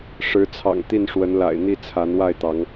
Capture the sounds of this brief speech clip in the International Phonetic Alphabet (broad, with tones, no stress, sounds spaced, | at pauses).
ʂ ɻ̩˨˦ t͡sʰ ɑ̰˨˩ ŋ t̪ i˥˨ n ʂ w ə˨˦ n l a̰˨˩ ɪ̯ n̪ i˥˨ t͡sʰ a˨˦ n w a˥˨ ɪ̯ t̪ ɑ˨˦ ŋ